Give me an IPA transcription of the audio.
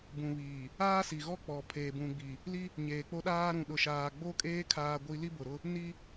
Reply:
b ũ˨ β iː˨ | aː˦ s i˨ ɣ ɔ˦ k͡p ɔ˨ pʰ eː˨ b ũ˨ ɡ͡b i˨ | l i˦ | ɲ eː˨ k͡p o˦ ɗ aː˦ ɾ ũ˨ ɗ ʊ˨ ʃ aː˨ ɡ͡b o˦ kʼ eː˦ kʰ aː˦ ɡʷ i˦ l i˦ b ʊ˨ ɾ ʊ˦ | n i˦

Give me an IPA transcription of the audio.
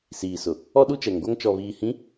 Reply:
s iː˨ s ʊ˨ | ɔ˦ ɗ u˦ t͡ʃ ɛ˨ ŋ ɡʷ a˦ ŋ t͡ʃ ɔ˨ β iː˨ h ĩ˨˦

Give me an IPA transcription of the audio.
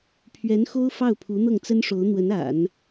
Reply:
pʰ ɥ ɛ˧˥ n x o˥ ʊ̯ f ɑ˥˩ ʊ̯ pʰ u˧˥ n̪ ɤ˥˩ ŋ t͡s ə˥ n ʂ o˧˥ ʊ̯ n̪ w ə˧˥ n a̰˨˩˦ n

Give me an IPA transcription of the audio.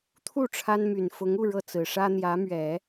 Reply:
t̪ʰ u˥˩ ʈ͡ʂʰ a˥ n m y˨˩ n f ʊ˧˥ ŋ u˥˧ ɻ ɤ˥˩ t͡s ɹ̩˨˩ ʂ ä˥ n̪ j ä˧˥ m ɥ ɛ˨˩˦

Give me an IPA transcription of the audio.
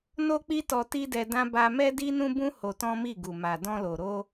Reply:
n o˦ k͡p i˦ t ɔ˧ t i˦ d ɛ˧ d ã˦ b a˧ m ɛ˦ d i˦ n ũ˦ b ũ˦ h o˧ t ɔ̃˦ m i˦˨ ɡ u˨ m a˨ d ɔ̃˧ l o˨ ɾ o˧

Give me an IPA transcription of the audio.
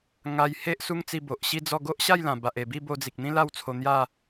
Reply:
ŋ a˧ j h e˦ ʔ s u˦ ŋ t͡s i˧ b o˨ ʔ ɕ i˥˧ d͡z ɔ˥˧ ɡ o˦ ʔ ɕ a˥˧ j l ã˨˩ b a˨ ʔ e˨˩ b i˥˧ b o˧ d͡z i˨ k̚ n̪ ĩ˦ l a˥˧ w t͡sʰ o˧ n̪ j a˥˧

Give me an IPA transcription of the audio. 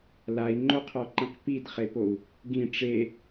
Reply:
l a i̯ ŋ͡ǃ o qʰ ɔ ǃ ĩ q p i d χ e p o u̯ | ɡ ĩ ʈ͡ʂ e

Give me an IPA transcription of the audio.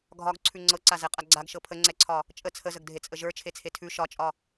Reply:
ɡʱ ɒ ɡ ǀʰ ʉ ŋ͡ǀ ɤ ǀ a z ɛ qʼ a ɡ͡ǀ a ɡ ʃ ɤ pʰ ə ŋ͡ǀ ɛ ǀʰ ɒ | t͡ʃʼ ə t͡sʰ ə z ə ɡ dʱ e t͡sʼ ə ʒ ə˞ t͡ʃʰ e t͡sʰ e tʰ ʉ ʃ ɒ t͡ʃʼ ɒ

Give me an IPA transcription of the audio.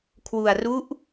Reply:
kʰ w u˧ a̯ r u˦˥ ʔ

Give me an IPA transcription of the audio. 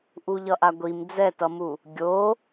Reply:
ʔ u ʎ ʌ ʔ a ɡʷ i m d͡z ɛ t ʌ m u | ɡʲ o

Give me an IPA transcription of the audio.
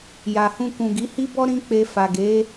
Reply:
j a˨ h ũ˧ k ũ˨ ɡ i˨˦ h i˦ b ɔ˦ ɾ ĩ˦ k͡p e˧ f a˨ ɡ e˨˦

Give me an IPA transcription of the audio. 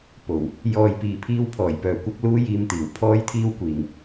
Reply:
p o˨˩ w | j ɔː˨ j p iː˨ pʰ iː˧ w pʰ ɔː˨˩ j p œː˨ kʷ ɐ˧ k̚ l uː˥ j iː˧ m t̪ iː˨˩ w pʰ ɔː˥ j t̪ʰ iː˥ w kʷ iː˨ ŋ

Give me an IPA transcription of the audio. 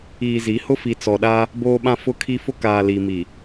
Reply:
iː˨ z i˨˦ h ʊ˦ f i˨ t͡s ɔ˨ ɗ a˦ | b oː˨ ɓ ã˨ f ʊ˨ kʰ i˨ f ʊ˦ k aː˨ l i˨ m i˨

